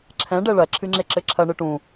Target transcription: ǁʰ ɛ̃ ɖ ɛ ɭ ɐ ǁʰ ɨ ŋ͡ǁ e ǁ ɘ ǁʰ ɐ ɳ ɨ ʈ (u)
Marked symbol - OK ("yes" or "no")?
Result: no